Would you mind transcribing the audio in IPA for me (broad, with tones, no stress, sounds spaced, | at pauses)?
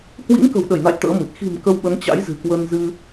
h w ḭ˧˥ ŋ k ə̤˨˩ w ɗ ə˧˩ j n a̰˧˨ j t̪ ə̰ː˧˥ m ɨ˨˩ t̚ x i̤˨˩ m k ə˧ w ɓ ə˨˦ n t͡ɕ a̰˧˥ j z ɨ̤˨˩ k w ə˧ n z ɨ˧